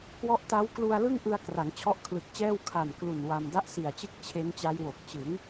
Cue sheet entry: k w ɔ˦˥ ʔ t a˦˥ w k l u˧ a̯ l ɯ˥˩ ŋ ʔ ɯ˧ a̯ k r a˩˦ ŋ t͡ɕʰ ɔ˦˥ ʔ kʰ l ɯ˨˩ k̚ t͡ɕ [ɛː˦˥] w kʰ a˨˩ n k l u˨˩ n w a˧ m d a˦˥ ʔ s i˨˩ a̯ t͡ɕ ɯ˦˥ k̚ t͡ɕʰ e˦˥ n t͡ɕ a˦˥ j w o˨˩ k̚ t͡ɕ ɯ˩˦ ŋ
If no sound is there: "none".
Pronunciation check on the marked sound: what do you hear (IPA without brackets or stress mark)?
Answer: ɛː˥˩